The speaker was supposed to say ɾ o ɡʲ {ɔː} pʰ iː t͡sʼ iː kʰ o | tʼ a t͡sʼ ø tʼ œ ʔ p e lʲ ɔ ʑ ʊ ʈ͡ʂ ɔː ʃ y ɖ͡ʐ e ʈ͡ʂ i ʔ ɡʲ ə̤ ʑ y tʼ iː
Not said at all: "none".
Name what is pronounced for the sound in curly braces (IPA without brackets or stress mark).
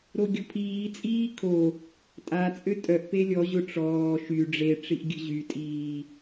ɔ